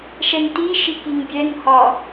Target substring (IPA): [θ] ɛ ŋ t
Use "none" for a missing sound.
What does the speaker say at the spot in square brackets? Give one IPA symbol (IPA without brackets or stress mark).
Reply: ʃ